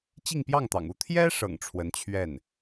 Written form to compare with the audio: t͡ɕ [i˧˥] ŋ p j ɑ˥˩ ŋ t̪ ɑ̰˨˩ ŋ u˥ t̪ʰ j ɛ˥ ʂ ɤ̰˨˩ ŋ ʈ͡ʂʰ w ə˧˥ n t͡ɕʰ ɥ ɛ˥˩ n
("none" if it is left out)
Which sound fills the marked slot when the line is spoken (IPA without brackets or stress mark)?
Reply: i˥˧